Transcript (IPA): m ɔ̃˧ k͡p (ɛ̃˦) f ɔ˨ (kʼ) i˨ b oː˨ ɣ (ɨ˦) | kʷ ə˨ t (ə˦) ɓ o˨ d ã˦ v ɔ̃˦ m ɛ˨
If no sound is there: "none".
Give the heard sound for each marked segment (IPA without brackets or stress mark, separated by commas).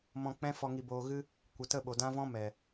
ɛ̃˦, ŋ, ɨ˧, ə˦˨